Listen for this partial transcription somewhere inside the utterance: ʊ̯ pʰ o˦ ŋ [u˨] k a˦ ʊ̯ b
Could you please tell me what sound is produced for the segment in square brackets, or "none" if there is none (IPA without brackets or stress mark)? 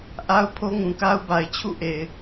ũ˨